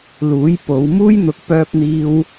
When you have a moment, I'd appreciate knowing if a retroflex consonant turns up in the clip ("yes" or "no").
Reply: no